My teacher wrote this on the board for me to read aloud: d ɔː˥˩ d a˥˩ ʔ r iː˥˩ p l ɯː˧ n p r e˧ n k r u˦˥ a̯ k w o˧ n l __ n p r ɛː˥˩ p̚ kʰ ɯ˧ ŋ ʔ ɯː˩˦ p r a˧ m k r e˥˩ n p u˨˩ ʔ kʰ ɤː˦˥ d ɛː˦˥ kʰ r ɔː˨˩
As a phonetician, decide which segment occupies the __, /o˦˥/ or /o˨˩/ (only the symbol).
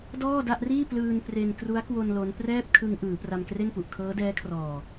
o˦˥